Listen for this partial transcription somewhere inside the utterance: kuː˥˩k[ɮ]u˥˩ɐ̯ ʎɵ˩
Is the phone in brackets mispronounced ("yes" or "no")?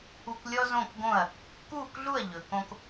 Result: no